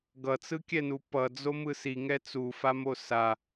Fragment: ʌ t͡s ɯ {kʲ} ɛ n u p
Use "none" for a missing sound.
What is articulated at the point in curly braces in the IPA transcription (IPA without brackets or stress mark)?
kʲ